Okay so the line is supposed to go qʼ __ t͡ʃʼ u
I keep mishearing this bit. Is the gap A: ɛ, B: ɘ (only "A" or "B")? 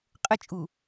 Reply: B